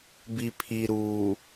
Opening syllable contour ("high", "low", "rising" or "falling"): low